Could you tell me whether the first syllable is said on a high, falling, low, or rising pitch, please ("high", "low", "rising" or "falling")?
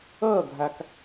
falling